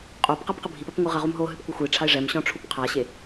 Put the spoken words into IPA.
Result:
qʼopqɛp qɨbʱipɐp ŋʷɨʁɐʁum ɦo ɦɨpkʷɘxʷiʈ͡ʂʰaɪ̯ ʐɛmɕɔ̃ ʈ͡ʂʰupqʰaɕe

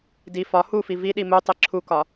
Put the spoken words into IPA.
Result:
di fɒ hufi viɗi mutˤi ǁʰukɒ

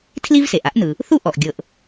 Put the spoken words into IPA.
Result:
tʰli˥vse˩ʔa˥ʔnɯ˩ | θu˥ʔɔ˩ʔ ɡʲɤ˩ʔ

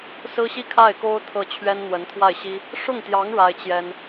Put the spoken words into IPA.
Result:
sɹ̩˥ɕi˥˧kʰa˥˩ɪ̯ko˥ʊ̯ t̪ʰɤ˥˩ t͡ɕʰɥɛ˥nn̪wə˧˥nt̪ʰwa˥˩ɪ̯ɕi˥ | ʂʊ˥˩ŋt̪jɑ˧˥ŋ ɻa˥ɪ̯t͡ɕjɛ˥n

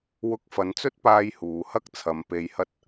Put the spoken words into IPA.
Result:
wʊ˧k̚fɐ˨˧nt͡sɵ˥t̚paː˧j huː˨hɐ˥k̚t͡sʰɐ˨˧m pe˨jhɐ˧t̚

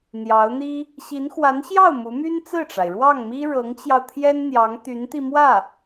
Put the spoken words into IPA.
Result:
n̪jɑ˧˥ʊ̯n̪i˥ | ɕi˧˥n xwa˧˥nɕjɑ˥˩ʊ̯ mu˧˥my˥nt͡sɹ̩˥˩ʈ͡ʂa˩ɪ̯ ɻwɑ˥˩ŋmi˥ ɻɤ˧˥ŋt͡ɕjɑ˧ʊ̯t̪ʰjɛ˥n n̪jɑ˧˥ŋt̪y˧˥nt̪i˧ mwä˥˩

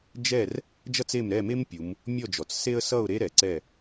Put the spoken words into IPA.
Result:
d͡ʒɛ˥˨r | d͡ʒʌ˥t͡se˥˨m ɾɛ˥˨me˥mpʲu˩˧m | mʲɔ˥˨d͡ʒɔ˩˧t͡sse˥ə̯ sʌ˥˨ʊ̯ ɾe˥ ɾɛ˩˧ǀɛ˥˨

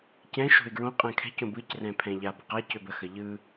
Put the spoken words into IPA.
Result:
cɛ̃ ʃo̤ɪ̯ɡɹõ qʼɛ̃kʰɛ̤ cõbɯc rɛ̃pʰɛ̃ʎa bə̤qa cøbə xəʎɯ

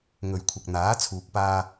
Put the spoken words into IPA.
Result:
ŋɵ˨ɥkʷʰɐ˨k̚n̪aː˨˥ t͡sʰuː˨k̚ paː˧

